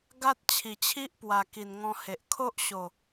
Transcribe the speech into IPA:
ɡ a˦ t̚ t͡ɕʰ i˨˩ t͡ɕʰ i˦ ʔ p w a˨˩ k i˨˩ n ŋ ɔ̃˧ h e˨ ʔ kʰ o˦ ʔ ɕ o˨˩

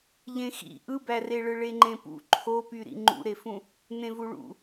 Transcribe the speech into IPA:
ʎ ẽ x ḭ ʔ ɯ b æ r e ɭ ɯ ɭ e ŋ͡ǃ ẽ p ṵ ǃʰ o p y ɾ ḭ ŋ͡ǃ ṵ ɾ e f ũ | n ẽ v u ɭ ṵ

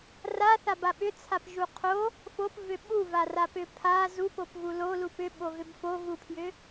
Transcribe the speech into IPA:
r a θ a b a ɓ ʏ t͡sʰ a p ʒ u qʰ o | f o p v ʏ ɓ u v a r a p ʏ pʰ a z u p o p ɣ u l o l u p ʏ ɓ o ɣ ʏ b f o ɣ u pʰ j ʏ

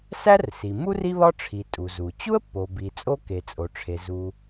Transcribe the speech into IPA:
s æ˥ r s i˩ m u˥ r i˥ β ɒ˥ ʈ͡ʂʰ i˩ tʼ u˩ z u˩ t͡ɕ u˥ ə̯ pː o˩ b i˩ t͡sʼ o˥ k e˩ t͡sʼ o˩ ʈ͡ʂʰ e˩ z u˩

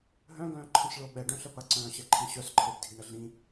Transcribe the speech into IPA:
ɦ œ̃ ɡ œ̃ː ǃʰ ə̃ s ɭ o ɓ ɛ ɖ œ̃ ɬ ə p ɐ ǀ œ̃ː ɕ ɛ ǃʰ ĩ ɕ œ s ǃʰ e b dʱ i ɳ ə ɮ ĩ

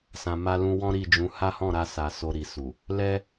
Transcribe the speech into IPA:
s ã˨ m a˧ l ũ˧ w ɔ̃˦ ɾ i˦˨ d͡ʒ ũ˨˦ h a˦ h ɔ̃˦˨ ɾ a˧ s a˨ s o˧ ɾ i˨ s u˨ | l ɛ˦

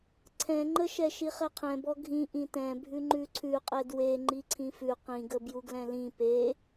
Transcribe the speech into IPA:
ǀʰ ɛ̃ ŋ͡ǃ ə ʃ ɛ ʃ i χ ɛ qʰ ɛ̃ b ɔ ɡʱ ĩ ʔ ĩ t ɛ̃ bʱ ʉ ŋ͡ǃ ʉ ǀʰ ʉ qʼ ɛ d w e ŋ͡ǃ i ǀʰ ĩ f ʉ q ĩ ɡ ə b j u ɡ l ɛ̃ l ĩ p e

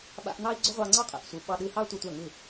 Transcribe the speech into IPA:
ɓ a̰˧ ʔ n̪ ɑ˦ i̯ ɡ͡ǀ ʏ˦ ʁʷ ɑ˧ ŋ͡ǀ ɑ˦ qʼ ɛ̰˨ ʔ sʷ ɯ˨˦ ɓ ɑ˧ ɗ ɯ˧ h ɑ˦ tʷ ɛ˧ tʷ a˦˨ ŋ ɯ˦˨

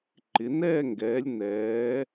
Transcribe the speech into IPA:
ǃ ɪ˩˧ n ɛː˥˧ ŋ ɡ ɛː˩˧ lʲ n ɛː˩˧

